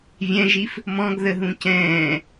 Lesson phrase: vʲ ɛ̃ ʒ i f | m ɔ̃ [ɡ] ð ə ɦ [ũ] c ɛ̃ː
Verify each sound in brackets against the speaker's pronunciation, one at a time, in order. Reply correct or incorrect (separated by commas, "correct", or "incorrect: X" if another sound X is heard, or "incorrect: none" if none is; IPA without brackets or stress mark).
correct, correct